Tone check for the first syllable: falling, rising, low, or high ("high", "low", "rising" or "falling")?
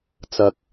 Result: low